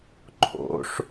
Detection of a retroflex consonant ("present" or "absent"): present